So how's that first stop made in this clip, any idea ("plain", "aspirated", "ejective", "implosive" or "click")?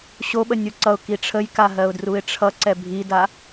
implosive